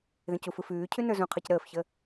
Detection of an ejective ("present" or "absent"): absent